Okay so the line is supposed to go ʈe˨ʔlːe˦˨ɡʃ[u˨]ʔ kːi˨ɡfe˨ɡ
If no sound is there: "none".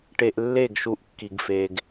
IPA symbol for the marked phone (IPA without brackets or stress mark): u˨